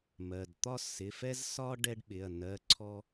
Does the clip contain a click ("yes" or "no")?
yes